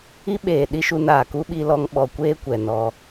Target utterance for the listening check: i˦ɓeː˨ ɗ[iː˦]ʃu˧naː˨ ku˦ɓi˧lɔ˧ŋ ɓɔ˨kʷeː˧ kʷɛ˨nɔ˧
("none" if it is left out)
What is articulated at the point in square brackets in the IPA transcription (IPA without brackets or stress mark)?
i˦